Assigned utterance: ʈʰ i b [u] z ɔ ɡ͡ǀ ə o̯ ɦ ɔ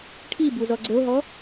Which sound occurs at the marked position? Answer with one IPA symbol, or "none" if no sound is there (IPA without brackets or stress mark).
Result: u